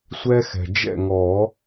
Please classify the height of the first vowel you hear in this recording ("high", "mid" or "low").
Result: mid